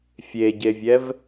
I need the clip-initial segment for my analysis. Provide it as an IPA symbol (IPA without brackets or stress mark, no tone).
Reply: fʲ